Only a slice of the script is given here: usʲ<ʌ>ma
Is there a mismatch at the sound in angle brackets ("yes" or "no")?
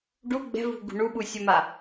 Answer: no